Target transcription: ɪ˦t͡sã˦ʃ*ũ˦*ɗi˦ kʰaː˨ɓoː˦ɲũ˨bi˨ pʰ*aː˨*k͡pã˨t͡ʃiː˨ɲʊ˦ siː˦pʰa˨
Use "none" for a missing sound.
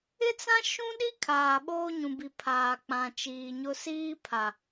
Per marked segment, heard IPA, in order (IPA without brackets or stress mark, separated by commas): ũ˦, aː˨